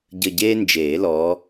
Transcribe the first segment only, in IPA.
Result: ɟ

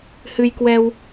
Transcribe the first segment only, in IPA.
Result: h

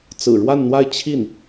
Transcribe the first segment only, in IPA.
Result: t͡s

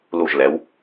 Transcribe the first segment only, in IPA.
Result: l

